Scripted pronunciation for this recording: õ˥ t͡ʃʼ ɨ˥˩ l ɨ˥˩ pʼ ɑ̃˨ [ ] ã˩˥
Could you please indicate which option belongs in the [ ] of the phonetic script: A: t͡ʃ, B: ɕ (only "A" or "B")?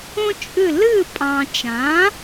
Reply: A